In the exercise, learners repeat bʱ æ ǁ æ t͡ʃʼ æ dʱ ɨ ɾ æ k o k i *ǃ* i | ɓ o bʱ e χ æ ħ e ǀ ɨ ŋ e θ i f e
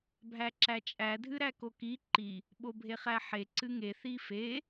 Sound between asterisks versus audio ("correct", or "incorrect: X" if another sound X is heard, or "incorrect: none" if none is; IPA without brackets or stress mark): correct